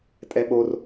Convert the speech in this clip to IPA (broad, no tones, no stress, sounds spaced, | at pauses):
tʼ ɛ ɓ o r